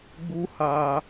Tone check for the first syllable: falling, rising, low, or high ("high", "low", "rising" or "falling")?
high